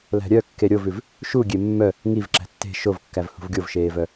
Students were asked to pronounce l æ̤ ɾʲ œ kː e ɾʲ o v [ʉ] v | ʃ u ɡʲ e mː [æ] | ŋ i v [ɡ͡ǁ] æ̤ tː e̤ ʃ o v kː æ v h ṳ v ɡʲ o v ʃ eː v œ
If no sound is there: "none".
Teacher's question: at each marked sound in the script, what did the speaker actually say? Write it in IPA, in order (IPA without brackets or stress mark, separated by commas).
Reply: ʉ, œ, ǁ